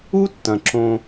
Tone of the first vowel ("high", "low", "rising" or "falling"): high